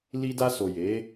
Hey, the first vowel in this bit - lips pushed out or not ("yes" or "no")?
no